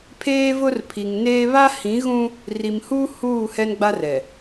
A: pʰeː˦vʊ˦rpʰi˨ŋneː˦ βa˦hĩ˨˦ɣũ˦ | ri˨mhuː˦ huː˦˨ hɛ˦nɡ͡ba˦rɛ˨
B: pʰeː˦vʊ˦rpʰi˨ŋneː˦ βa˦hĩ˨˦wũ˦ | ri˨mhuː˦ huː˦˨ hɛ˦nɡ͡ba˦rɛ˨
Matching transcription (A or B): A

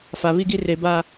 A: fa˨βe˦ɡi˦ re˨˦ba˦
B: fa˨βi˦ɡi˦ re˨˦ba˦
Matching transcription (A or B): B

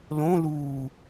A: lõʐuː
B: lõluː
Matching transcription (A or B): B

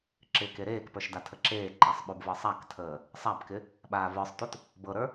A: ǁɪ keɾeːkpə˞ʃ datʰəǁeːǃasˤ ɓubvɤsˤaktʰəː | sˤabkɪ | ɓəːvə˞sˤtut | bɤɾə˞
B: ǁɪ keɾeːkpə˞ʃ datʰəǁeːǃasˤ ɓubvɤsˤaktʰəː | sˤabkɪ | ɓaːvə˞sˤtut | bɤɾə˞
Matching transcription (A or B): B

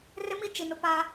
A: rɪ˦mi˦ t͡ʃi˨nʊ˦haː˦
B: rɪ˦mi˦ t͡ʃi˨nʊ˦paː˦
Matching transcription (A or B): B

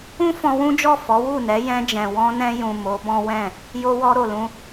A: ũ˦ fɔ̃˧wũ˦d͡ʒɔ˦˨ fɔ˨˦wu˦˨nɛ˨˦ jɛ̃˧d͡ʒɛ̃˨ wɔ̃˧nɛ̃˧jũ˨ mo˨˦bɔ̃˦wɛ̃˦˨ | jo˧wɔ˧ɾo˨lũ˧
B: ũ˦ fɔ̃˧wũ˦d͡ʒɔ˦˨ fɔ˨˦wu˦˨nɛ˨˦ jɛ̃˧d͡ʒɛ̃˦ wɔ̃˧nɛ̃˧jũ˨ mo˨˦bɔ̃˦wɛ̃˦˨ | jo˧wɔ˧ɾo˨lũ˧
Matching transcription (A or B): A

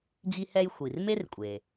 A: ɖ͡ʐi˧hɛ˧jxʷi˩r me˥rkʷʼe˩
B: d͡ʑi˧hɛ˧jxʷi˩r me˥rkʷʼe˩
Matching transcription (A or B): B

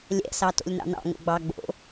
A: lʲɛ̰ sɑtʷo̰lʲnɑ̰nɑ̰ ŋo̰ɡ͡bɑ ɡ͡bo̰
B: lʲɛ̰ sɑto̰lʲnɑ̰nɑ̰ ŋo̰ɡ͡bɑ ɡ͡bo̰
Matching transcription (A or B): B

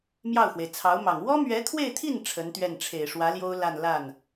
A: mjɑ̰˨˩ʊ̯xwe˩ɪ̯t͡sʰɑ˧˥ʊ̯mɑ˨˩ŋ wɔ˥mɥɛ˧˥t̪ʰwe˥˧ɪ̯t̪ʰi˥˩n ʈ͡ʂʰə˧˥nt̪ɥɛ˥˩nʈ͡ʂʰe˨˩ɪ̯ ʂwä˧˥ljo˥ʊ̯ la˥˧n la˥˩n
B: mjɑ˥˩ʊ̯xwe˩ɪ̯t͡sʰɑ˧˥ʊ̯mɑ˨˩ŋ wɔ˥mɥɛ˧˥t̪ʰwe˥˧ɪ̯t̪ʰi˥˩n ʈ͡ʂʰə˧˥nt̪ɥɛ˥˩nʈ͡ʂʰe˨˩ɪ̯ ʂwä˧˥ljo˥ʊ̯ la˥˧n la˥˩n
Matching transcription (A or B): B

